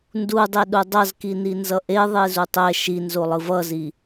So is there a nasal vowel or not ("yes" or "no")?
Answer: no